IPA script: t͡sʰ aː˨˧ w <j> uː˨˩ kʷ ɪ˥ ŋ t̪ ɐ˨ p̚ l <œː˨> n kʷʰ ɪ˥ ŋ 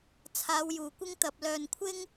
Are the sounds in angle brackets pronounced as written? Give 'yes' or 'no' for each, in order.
yes, yes

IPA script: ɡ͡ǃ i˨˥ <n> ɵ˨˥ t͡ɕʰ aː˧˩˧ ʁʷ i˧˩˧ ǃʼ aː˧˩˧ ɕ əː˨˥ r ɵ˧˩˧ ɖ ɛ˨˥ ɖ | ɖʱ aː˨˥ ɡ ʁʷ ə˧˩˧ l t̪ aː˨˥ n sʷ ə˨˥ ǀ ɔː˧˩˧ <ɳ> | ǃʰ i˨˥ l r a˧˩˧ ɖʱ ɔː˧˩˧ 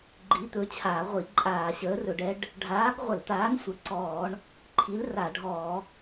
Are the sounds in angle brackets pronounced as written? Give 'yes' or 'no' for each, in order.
no, yes

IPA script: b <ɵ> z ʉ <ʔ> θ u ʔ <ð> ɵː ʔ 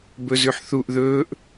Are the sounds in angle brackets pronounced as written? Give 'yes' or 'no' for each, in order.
yes, no, yes

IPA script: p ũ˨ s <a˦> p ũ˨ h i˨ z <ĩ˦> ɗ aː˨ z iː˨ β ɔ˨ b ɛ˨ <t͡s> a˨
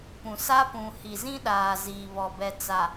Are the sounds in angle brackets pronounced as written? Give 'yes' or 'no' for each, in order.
yes, yes, yes

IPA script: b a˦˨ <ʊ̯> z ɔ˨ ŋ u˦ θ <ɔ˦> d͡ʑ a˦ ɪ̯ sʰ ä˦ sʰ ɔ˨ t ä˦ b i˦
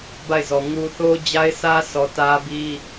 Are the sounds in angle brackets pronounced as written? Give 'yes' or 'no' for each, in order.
no, no

